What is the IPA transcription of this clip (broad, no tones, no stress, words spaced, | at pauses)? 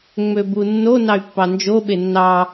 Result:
ŋ͡møbunːo nɑy̯pːɑnd͡ʒo ɓenːɑ